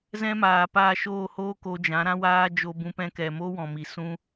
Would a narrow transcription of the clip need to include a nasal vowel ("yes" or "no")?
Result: yes